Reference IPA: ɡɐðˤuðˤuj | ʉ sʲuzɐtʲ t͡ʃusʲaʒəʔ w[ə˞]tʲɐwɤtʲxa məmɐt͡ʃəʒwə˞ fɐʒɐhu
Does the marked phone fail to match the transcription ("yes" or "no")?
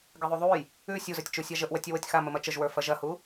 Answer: yes